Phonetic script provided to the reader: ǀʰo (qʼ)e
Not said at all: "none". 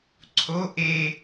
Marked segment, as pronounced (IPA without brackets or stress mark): ʔ